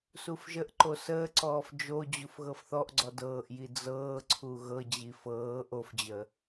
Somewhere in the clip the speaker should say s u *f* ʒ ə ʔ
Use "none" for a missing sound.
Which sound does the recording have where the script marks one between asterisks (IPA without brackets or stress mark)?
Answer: f